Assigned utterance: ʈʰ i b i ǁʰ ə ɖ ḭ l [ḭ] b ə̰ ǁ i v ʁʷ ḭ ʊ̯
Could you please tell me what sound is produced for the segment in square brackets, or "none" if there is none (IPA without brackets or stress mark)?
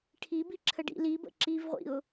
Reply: i